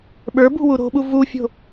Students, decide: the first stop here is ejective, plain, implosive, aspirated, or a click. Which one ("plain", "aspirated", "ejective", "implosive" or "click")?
implosive